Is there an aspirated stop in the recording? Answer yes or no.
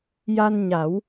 no